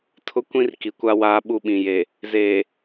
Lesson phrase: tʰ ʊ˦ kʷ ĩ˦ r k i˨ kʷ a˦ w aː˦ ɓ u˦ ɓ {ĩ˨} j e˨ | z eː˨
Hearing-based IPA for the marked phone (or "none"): ĩ˨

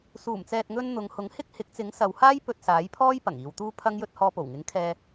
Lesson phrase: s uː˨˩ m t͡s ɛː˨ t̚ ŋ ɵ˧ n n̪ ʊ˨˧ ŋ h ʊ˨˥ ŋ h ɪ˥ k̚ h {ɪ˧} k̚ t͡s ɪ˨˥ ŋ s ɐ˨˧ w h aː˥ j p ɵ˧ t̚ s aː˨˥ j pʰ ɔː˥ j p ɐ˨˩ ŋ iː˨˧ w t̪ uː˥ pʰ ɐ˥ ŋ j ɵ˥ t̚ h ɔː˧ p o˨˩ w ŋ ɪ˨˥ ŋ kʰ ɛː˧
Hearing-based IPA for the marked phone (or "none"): ɪ˨˥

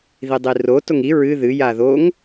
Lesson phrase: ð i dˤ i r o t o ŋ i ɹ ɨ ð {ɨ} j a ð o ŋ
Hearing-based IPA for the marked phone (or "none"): ɨ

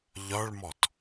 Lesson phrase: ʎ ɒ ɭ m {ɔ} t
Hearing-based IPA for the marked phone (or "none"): ɔ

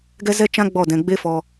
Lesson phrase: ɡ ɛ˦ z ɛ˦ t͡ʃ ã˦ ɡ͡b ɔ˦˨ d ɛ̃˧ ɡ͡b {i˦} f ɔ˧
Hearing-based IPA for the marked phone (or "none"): e˦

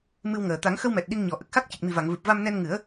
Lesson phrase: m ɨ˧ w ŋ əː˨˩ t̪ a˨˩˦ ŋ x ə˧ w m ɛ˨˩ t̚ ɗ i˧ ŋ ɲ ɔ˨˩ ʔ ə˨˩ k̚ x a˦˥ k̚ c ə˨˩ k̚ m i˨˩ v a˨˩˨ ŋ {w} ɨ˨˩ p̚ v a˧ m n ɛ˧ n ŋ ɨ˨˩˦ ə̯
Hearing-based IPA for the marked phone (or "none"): v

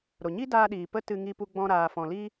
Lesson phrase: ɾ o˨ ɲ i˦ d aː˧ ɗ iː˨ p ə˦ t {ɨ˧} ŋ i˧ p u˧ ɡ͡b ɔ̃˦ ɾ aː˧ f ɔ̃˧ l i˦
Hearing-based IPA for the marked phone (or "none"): ɨ˧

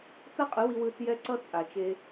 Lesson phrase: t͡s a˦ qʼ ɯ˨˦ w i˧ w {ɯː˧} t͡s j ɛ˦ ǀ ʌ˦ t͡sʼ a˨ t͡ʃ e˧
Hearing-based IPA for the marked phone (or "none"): ɯː˧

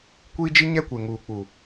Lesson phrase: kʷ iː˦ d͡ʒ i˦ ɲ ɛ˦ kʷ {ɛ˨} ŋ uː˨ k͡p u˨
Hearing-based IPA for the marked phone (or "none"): e˨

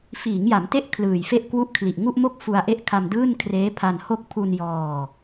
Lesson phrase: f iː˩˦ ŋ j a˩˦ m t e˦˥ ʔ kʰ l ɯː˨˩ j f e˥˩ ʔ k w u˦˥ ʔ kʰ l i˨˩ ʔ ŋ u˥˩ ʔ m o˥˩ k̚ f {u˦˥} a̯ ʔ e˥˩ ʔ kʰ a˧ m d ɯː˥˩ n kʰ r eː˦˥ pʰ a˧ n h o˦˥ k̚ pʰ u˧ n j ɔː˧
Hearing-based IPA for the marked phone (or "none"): u˧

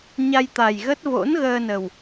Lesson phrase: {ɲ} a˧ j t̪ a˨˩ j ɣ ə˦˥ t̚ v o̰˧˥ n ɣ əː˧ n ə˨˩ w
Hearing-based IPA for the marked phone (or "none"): ɲ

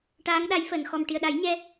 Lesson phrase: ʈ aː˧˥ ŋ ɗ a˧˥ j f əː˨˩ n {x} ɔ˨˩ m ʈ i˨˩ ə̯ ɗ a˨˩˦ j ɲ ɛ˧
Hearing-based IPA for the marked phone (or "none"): x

